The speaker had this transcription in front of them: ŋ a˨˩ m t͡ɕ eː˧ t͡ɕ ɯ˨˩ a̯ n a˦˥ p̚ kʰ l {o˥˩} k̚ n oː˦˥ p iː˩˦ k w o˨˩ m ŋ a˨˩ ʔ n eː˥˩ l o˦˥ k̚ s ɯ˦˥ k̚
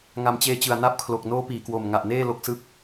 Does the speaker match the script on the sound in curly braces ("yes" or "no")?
no